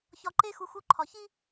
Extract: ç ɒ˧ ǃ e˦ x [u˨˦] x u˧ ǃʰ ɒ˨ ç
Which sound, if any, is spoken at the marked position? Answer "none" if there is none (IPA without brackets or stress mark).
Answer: u˨˦